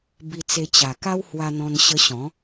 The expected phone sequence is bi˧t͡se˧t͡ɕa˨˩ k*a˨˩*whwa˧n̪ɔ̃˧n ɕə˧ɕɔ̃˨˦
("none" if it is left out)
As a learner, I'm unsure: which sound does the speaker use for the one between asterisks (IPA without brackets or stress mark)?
a˦